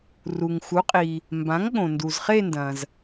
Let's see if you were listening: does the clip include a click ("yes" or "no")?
no